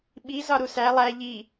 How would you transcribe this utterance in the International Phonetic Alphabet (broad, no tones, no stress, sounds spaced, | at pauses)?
ɓ i z ɒ ɾ u s æ lˠ æ ʎ i